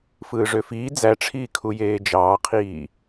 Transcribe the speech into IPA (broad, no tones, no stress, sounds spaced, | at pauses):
f ɯː ʐ ø f iː d͡z æ ʈ͡ʂʰ iː kʰ u j eː d͡ʒ ɑː qʰ iː